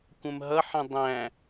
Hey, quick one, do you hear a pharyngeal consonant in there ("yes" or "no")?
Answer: yes